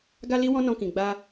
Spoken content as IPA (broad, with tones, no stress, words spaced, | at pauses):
ɡa˦li˦wɔ̃˦ nɔ̃˧kĩ˨ ɡ͡ba˧